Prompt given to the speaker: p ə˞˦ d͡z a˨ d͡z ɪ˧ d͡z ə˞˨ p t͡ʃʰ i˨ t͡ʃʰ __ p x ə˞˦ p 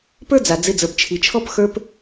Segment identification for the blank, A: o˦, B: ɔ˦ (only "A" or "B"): B